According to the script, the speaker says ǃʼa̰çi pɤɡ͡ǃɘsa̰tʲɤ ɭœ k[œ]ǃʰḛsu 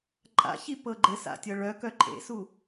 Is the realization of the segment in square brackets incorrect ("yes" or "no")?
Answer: no